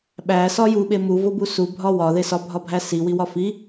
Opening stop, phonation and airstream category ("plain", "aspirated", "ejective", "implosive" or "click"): implosive